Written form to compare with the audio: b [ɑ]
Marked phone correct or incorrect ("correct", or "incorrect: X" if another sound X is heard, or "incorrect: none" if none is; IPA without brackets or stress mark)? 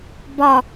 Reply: incorrect: ɒ